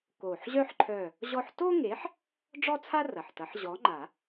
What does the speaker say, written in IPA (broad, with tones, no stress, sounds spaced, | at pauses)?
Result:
k oː˨˩ ħ ʑ œ˥ ħ ǃʰ œː˦˨ | ʑ ɔ˥ ħ t o˥ ŋ e˨˥ ħ | ɖ͡ʐ ɔ˥ t͡sʰ a˥ r ɐ˨˩ ħ t ɐ˨˥ ħ ʑ ɔ˨˥ ŋ͡ǃ a˨˩˦